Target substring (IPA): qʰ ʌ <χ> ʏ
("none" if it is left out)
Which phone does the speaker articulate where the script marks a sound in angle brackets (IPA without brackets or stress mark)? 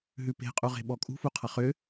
χ